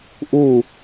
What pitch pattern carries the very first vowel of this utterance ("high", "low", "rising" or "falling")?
falling